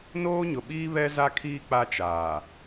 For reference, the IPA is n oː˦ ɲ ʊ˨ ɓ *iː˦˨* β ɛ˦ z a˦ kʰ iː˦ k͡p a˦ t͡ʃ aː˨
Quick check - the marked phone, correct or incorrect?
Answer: incorrect: iː˦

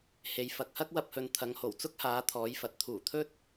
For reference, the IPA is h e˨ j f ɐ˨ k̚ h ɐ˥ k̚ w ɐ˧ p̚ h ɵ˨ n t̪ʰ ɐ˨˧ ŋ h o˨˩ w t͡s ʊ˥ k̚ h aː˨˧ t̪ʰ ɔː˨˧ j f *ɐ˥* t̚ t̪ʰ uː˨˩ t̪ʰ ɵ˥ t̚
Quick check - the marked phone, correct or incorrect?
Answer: incorrect: ɐ˨˥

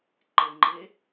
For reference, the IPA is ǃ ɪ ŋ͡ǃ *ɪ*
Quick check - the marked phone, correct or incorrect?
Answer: incorrect: ɪː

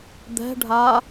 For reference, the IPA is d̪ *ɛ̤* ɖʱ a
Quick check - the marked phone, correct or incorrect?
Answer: correct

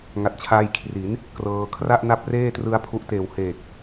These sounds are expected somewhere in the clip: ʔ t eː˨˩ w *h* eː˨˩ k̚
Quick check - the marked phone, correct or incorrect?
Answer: correct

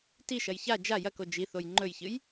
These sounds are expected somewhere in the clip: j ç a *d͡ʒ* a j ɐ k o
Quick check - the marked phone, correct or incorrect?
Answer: correct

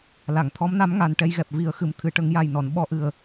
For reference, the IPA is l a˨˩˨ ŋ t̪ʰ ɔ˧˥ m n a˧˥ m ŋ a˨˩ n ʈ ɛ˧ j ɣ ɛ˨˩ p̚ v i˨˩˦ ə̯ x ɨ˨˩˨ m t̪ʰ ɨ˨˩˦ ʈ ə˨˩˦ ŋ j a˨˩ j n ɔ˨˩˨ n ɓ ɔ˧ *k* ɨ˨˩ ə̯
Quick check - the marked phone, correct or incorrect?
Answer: incorrect: ʔ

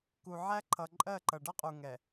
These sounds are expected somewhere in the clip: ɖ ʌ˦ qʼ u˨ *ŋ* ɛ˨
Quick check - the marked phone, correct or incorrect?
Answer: correct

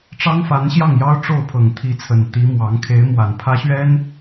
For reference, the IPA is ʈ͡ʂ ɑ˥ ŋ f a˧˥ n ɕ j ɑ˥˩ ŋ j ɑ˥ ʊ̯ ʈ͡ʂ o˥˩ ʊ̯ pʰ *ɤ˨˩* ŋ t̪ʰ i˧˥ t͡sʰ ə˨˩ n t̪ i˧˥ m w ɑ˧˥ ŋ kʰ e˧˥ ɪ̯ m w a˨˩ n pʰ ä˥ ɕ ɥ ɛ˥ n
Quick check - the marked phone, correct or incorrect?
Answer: correct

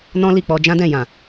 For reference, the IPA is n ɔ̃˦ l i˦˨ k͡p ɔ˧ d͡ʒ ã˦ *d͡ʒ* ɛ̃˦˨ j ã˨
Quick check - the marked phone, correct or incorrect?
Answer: incorrect: d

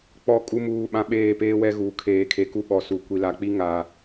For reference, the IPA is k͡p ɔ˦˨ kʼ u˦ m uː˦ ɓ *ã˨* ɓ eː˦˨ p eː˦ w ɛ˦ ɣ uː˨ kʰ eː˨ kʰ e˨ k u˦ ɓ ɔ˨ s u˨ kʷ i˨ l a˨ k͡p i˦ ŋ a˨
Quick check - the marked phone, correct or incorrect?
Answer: incorrect: ã˦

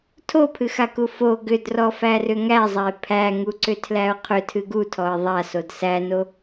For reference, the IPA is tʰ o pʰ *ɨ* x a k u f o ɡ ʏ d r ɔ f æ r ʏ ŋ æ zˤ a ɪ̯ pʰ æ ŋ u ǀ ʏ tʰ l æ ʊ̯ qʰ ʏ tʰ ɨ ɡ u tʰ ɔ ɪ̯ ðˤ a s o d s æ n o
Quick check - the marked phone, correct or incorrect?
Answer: correct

